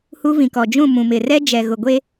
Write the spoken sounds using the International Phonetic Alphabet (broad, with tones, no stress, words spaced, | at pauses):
hu˦vĩ˨kɔ˨ d͡ʒũ˦˨mũ˨mɪ˨ rɛ˦d͡ʒɛ˨ɣʊ˨ɡʷe˦